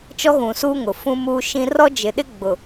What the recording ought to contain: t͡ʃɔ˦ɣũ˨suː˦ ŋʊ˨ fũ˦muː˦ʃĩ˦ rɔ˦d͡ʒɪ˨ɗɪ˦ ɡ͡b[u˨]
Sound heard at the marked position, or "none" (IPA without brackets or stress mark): ʊ˨